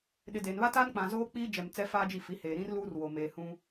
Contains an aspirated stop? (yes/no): no